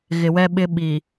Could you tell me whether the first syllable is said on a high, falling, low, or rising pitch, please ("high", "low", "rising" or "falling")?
low